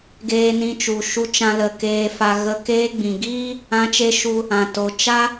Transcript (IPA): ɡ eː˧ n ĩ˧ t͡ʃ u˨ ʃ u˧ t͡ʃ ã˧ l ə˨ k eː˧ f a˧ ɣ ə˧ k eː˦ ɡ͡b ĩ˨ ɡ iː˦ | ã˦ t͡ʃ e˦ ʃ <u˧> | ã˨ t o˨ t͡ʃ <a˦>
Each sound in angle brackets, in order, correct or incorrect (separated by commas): correct, correct